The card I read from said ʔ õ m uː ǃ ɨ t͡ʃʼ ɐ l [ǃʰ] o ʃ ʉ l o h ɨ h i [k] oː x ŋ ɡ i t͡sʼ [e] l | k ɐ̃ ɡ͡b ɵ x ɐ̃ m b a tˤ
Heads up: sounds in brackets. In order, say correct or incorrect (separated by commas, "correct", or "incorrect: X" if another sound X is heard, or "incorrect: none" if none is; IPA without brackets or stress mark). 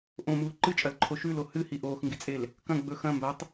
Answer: correct, incorrect: ʔ, correct